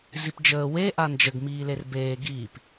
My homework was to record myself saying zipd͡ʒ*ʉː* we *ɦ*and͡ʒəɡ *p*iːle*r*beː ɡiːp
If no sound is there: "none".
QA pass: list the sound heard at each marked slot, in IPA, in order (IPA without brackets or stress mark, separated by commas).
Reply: əː, ʔ, m, r